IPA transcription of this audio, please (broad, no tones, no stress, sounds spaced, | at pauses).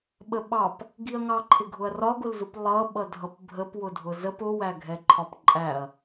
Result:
ɓ ə ɓ ɑ p | ɡ i ɐ̯ ŋ ɑ ǃʰ ɪ ɡʱ ʊ ɐ̯ r ɒ ɡ ʊ l z u p lˠ ʌ ɓ ʌ dʱ ʌ p bʱ ə p w ʊ dʱ ʊ z ə p ʊ w æ ɡʱ ɛ ǃʰ ɒ p ǃʼ æ ɐ̯